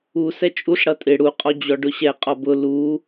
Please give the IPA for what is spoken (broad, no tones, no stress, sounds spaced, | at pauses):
u s ɛ t͡ʃʼ u ɬ ɽ ʌ tʼ ɪ ɽ u qʼ ɔ d͡ʑ ɔ ɖ ʊ ɕ ɛ qʼ ɔ b ʊ l u